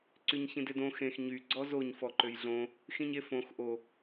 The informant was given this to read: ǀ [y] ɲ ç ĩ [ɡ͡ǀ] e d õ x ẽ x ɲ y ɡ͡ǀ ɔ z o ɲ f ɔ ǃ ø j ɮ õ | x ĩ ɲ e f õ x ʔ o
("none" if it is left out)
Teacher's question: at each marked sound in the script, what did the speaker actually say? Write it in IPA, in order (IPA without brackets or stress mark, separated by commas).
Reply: y, d